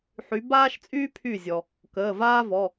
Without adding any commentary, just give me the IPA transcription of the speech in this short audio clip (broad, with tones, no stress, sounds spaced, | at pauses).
ħ y˨˦ b aː˥ ʃ t͡sʼ yː˥ pʰ y˧˩ zʲ ɔ˩ | k əː˩˧˩ v aː˥ v ɔ˩˧˩